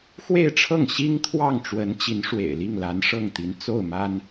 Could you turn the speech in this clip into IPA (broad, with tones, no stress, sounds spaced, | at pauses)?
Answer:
x w e˥˧ ɪ̯ ʈ͡ʂʰ ɤ˥˩ ŋ ɕ i˥ ŋ t̪ʰ w ɑ˥˩ ŋ ʈ͡ʂ w ə˧˥ n t͡ɕ i˧˥ n ʂ w ḛ˨˩ ɪ̯ l i˥˩ ŋ l a˧˥ n ʂ ɤ˥˩ ŋ t̪ i˧˥ n t͡s o˥˩ ʊ̯ m a˥ n